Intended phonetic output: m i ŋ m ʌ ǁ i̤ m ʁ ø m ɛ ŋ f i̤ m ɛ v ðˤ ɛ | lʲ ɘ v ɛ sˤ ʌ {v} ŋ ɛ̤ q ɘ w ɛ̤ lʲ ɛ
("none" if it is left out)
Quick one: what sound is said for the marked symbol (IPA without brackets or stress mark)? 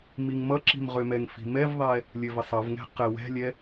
v